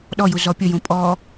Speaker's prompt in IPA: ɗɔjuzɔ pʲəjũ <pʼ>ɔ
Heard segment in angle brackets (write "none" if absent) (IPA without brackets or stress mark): pʼ